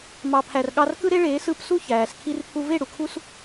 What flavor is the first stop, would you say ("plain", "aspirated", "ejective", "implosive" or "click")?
aspirated